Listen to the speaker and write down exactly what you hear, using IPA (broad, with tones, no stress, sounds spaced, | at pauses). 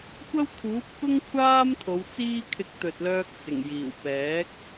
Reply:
kʷ ɐ˥ w t̪ʰ uː˨˥ p̚ k ʊ˥ ŋ kʷʰ aː˥ m t̪ʰ o˨˧ w t͡s iː˥ kʰ ɪ˧ k̚ t̪ ɵ˨ t̚ l œː˧ k̚ t͡s ɪ˨˩ ŋ j iː˨˩ w p ɛː˨˥ k̚